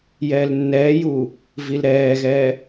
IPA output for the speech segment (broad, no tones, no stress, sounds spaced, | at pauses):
j ɛː l nː ɛː j uː | v i l ɾ ɛː ɣ ɛː